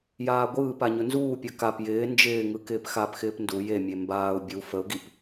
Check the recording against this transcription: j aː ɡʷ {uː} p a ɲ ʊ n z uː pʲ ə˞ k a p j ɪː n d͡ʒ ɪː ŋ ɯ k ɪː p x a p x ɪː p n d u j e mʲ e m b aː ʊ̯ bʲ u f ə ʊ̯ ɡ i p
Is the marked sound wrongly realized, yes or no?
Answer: yes